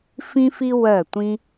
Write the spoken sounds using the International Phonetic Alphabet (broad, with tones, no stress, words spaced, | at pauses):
fĩ˦fi˦wɜ˧˩tʷĩ˦